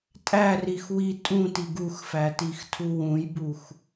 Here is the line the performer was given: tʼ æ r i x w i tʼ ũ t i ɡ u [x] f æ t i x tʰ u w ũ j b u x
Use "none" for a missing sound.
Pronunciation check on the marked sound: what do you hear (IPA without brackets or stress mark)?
x